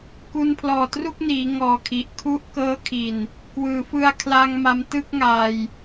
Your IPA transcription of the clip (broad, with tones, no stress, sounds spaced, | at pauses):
k u˧ n pʰ l ɔː˨˩ t r u˥˩ k̚ n iː˩˦ ŋ ɔː˨˩ kʰ i˨˩ ʔ kʰ u˦˥ ʔ k ɤː˦˥ kʰ i˨˩ n | k w ɯː˩˦ f ɯ˧ a̯ kʰ l a˧ ŋ m a˧ m t ɯ˥˩ k̚ ŋ aː˧ j